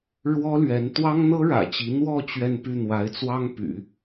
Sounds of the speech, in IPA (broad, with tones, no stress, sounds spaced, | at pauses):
ɻ w ɔ˥ l ɥ ɛ˧˥ n t̪ w ɑ˥ ŋ n̪ ɤ˥ ɻ ä̰˨˩ t͡ɕ i˧˥ n̪ w ɔ˥˧ t͡ɕ ɥ ɛ˥˧ n p y˥˩ n̪ w a˧˥ ɪ̯ t͡s w ɑ˥ ŋ p y̰˨˩˦